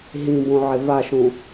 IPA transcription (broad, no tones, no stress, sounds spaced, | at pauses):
ɦ ĩ b õ ʕ ɪ v a ʃ ũ